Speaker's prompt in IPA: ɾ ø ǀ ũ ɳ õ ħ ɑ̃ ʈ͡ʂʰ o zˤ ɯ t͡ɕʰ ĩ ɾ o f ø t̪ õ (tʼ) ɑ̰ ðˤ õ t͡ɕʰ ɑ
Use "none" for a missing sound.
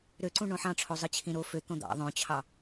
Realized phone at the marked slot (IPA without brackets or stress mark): d̪